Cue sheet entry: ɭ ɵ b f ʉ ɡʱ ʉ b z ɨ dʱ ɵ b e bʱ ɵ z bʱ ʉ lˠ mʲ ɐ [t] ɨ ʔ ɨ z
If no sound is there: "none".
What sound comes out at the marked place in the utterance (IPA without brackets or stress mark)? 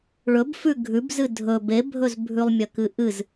k